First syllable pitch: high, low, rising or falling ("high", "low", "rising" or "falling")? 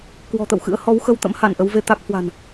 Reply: low